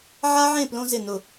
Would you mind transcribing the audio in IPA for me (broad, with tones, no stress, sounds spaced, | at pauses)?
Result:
ʕ a˦ ʕ ẽ˦˨ p l õ˦ z ɪ˦˨ n ʊ˦˨